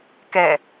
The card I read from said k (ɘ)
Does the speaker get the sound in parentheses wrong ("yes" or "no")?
yes